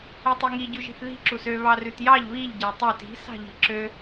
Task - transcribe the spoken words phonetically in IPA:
u tˤ i ŋ i ɟ ʉ ʒ i̤ θ ð i̤ ǁ u s ø β ɑ r ʉ t j ɑ ʎ β i ʎ ɟ æ tˤ ø t i̤ s ɑ̤ ʎ i̤ ǁ ø

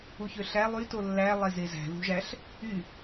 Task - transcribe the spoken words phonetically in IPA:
u ç ø ɬ æ lˠ y t o lː æ lˠ e z e z æ̤ ð ṳ ʒ æ ɬ | y

